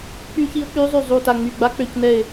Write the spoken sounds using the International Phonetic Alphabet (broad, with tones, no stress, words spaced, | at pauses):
k͡py˦˥ çi˦˥ʊ̯ k͡py˦˥zˤy˦˨ zˤu˦˨ta˦˨ŋ͡my˦˨ ɡ͡ba˦˥k͡pø˦˨c nɛ˦˨ɪ̯